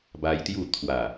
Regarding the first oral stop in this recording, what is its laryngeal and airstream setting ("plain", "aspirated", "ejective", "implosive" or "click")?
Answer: plain